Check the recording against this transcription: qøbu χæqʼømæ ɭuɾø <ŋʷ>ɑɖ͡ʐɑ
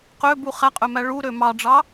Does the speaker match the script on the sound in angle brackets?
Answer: no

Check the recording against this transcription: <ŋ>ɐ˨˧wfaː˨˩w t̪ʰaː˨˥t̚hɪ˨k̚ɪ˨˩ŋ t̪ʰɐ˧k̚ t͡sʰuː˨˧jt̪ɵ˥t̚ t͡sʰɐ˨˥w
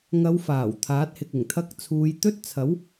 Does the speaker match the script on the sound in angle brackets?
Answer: yes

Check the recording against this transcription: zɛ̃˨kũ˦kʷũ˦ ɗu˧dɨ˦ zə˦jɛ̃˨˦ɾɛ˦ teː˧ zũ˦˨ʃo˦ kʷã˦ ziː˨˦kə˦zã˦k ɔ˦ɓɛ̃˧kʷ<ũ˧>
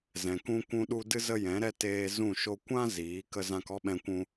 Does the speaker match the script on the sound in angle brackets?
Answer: yes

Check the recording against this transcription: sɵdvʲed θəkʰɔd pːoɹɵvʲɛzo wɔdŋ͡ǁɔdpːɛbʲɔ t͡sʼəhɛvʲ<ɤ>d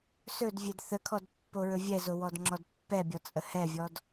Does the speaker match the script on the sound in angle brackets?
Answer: no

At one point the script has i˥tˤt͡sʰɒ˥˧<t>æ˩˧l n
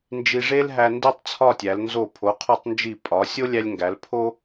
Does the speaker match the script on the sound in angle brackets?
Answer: no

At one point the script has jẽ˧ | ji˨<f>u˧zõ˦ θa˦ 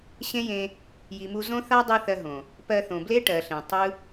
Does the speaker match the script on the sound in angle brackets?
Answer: no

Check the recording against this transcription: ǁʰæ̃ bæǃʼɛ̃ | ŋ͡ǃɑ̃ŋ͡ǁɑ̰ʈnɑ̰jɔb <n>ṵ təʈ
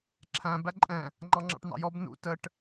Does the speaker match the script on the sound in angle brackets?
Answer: yes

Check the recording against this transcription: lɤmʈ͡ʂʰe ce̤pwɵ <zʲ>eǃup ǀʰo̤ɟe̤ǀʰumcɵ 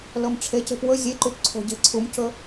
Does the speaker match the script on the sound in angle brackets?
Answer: yes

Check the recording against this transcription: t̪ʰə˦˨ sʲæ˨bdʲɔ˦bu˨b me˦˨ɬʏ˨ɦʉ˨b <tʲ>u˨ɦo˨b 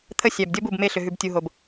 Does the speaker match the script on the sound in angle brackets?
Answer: yes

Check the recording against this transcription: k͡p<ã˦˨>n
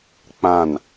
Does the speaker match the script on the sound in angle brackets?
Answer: yes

